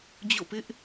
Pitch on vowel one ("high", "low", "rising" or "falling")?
falling